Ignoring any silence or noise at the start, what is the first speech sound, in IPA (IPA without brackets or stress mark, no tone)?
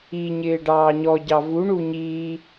i